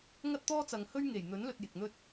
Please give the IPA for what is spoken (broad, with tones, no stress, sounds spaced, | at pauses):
ŋ ɐ˥ t̚ t̪ ɔː˥ t͡s ɐ˨ ŋ h ɵ˥ ɥ ŋ e˨˩ j n̪ ɵ˨˥ n l ɵ˧ t̚ j ɪ˨ k̚ n̪ ɵ˥ t̚